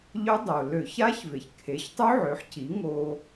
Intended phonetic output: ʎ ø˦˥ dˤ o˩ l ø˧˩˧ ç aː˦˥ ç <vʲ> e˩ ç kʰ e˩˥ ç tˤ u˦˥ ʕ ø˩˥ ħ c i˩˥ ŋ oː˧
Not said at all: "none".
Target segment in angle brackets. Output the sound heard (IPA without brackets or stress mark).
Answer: v